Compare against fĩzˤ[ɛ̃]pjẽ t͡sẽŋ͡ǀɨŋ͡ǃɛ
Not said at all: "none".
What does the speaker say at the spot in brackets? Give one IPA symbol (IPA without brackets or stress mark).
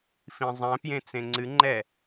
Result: ɛ̃